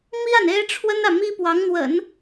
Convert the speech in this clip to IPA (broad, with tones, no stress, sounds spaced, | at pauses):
m i˥ a˨ n e˥ ɪ̯ ʈ͡ʂʰ w ə˥ n ä˨ m i˥ p w ɑ˧˥ ŋ n̪ w ə̰˨˩˦ n